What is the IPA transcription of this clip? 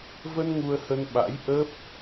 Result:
və˧n ŋu˧ə̯hə˧n ɓa̰˧˥j ʔə˦˥p̚

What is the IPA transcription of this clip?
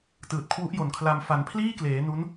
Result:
tɯː˨˩t̚kʰwu˦˥ʔjo˨˩nkʰla˧m fa˩˦npʰliː˥˩kleː˩˦ nu˦˥n

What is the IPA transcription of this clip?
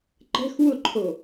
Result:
ǃɛ̤x wʊǃʰo

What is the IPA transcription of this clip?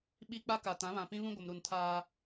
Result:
ɓi˦ k͡pa˦ka˨ tã˨˦βã˨pĩ˦βũ˦ ɡʷɪ˨mɾu˨n tʰaː˦

